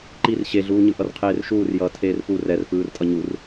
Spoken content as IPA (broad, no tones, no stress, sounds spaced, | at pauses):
ǃ i r ɕ e ɮ uː ɲ ɯ ʔ ʌ r qʰ eː r ʃ uː r j ʌː tʰ eː r p u r ɛ r f ɯː r tʼ ʌ ɲ u r